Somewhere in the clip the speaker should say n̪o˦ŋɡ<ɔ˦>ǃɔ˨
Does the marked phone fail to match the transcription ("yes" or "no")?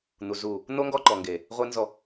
no